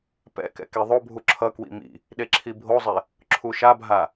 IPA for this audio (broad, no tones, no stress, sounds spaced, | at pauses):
p ɛ̰ k ɛ̰ k e ðˤ o bʱ u ǁʰ ʌ k w ḭ m ḭ | ɗ e ǁʰ i bʱ o zˤ e | ǁʰ u ʃ a bʱ a